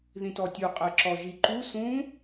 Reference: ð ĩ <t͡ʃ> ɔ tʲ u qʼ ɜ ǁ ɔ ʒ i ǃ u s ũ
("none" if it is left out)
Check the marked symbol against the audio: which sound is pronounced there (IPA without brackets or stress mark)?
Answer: t